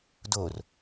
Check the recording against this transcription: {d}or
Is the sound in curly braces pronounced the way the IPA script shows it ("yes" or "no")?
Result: yes